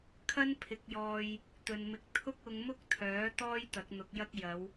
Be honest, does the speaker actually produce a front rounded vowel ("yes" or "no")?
yes